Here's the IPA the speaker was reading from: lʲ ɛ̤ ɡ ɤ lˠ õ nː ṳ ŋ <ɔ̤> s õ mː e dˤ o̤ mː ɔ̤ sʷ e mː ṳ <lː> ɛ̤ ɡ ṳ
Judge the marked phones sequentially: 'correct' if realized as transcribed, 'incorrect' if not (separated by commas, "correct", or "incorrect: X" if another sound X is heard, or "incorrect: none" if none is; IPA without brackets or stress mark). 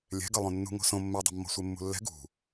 incorrect: o̤, correct